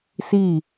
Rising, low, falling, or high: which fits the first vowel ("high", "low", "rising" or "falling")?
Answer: falling